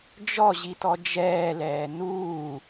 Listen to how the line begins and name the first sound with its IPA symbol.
d͡ʒ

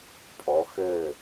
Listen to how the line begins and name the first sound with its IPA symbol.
pʼ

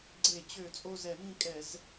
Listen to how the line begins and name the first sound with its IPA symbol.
ɡ͡ǀ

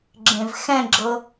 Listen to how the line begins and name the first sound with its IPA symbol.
ɡ͡ǁ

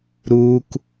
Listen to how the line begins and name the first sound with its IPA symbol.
ɾ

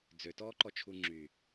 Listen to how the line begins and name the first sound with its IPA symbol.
d͡z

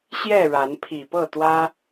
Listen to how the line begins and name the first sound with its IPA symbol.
ɕ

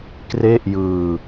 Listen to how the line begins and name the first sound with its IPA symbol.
k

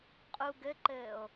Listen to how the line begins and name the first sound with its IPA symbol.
qʼ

